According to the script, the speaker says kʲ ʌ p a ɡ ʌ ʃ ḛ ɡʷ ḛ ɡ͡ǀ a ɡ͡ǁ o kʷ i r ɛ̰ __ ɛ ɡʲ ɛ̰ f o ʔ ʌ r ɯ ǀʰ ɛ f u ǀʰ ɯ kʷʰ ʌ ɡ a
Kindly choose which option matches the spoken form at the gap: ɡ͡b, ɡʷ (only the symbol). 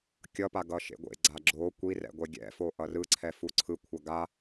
ɡʷ